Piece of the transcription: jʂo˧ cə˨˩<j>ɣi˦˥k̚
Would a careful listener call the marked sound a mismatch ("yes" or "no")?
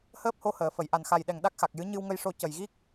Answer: no